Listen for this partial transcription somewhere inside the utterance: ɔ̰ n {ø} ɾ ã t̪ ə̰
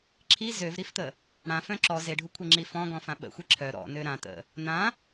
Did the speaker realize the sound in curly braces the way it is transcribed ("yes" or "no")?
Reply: yes